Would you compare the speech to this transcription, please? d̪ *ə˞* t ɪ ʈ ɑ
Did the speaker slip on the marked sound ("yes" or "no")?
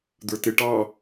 no